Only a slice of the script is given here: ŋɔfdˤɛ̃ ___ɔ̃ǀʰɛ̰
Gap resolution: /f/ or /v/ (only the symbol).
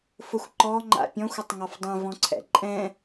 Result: v